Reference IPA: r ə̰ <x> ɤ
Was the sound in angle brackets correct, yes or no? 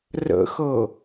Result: yes